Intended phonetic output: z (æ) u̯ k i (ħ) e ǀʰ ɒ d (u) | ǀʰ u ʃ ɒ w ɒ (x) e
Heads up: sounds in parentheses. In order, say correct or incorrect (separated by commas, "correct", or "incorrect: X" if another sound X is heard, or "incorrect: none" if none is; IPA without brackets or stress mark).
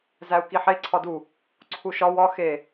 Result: correct, correct, correct, correct